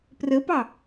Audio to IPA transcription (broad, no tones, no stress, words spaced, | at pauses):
prəpɑ